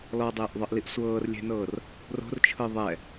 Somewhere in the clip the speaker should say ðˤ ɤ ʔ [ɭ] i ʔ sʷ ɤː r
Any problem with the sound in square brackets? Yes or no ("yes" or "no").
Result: yes